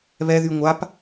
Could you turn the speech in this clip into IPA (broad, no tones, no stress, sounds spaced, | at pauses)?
β ɛ ð y ŋʷ a p